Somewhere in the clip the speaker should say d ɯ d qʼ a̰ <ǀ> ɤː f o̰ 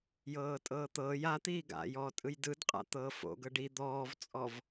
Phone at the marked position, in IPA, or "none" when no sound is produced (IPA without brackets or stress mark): t̪